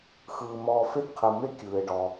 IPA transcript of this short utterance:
xɯː˩mɔː˨ fe˦tqʰɯ˩me˦ kʲɯː˩e̯ɖɔ˩

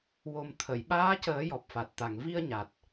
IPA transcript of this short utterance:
wo˨˩m t̪ʰə˨˩˨j ɓaː˧˥cəː˨˩˦ jɔ˨˩p̚fa˨˩t̚t̪a˨˩ŋ vi˧ə̯ɲa˨˩t̚

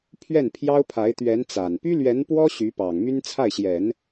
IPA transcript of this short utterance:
pʰɥɛ˥˩npʰjɑ˥ʊ̯pʰa˧˥ɪ̯ t̪ɥɛ˧˥nt͡sa˨˩n py˥lɥɛ˧˥npwɔ˥ ɕy˧˥pɑ˨˩ŋ my˥nt͡sʰa˥˩ɪ̯ɕjɛ˨˩˦n

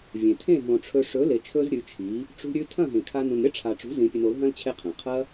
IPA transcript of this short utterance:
vʲẽ˨ tʰẽ˦˨ɦõ˨ʈ͡ʂʰɵ˧ ʂɵ˨˦le˨t͡ʃʰɵ˧z ɾʲʉ˨˦t͡ʃʰi˨˦ | ʈ͡ʂṳ˧ɾʲʉ˧tʰɐ̃˦˨ ɦẽ˨kʰa˧ nũ˨nɾʲɐ˦ʈ͡ʂʰa˨ʈ͡ʂṳ˨˦ zĩ˧pʲɨ˧n o˨˦lɦɐ̃˦l t͡ɕʰe˦qʰẽ˨ qʰɐ˦

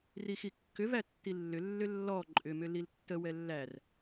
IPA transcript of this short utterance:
rixikːʏvæ tːilːʏlːʏ lːɔ ǃʼʏmʏ liltːəwɛ lːær

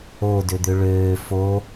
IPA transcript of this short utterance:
odød̪ø ɭøː fo

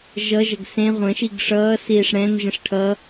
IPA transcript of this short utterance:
ʒʌʒʌɡ sẽ ʁʷə̃ʃiɡ ʂʌːsiːʂ ɽɛ̃nʒə̃ʂ ʈʰʌ

